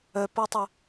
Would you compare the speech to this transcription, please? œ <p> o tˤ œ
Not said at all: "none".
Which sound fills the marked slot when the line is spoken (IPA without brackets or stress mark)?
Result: p